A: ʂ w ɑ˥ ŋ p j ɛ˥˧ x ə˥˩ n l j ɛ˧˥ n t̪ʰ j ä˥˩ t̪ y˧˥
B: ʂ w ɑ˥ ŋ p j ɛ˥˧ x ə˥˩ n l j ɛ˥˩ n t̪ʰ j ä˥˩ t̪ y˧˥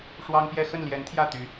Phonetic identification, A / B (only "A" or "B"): A